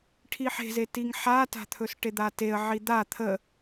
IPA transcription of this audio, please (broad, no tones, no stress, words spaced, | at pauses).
ʈʰiħe̤ze tiŋħata̤t̪ʰɵs ʈed̪ateə̯ ʕid̪a t̪ʰə